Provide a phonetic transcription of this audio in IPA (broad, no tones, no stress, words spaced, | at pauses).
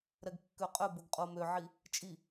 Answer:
ɾɛɡkːøqʼœboɡ qʼomøʕi | t͡ʃʼi